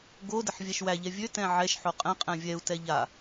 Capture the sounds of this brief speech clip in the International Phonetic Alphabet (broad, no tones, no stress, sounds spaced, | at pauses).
ɡ o d ə ħ vʲ æ ʃ w æ ʎ ɛ vʲ ø t ɛ̃ ʕ ɛ ʃ ħ o qʼ ɛ̃ qʼ ɛ̃ vʲ ɛ u̯ t ɛ ʎ a